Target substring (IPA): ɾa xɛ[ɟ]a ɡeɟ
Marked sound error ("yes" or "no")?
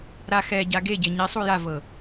no